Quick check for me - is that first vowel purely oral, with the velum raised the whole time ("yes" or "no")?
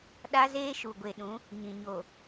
yes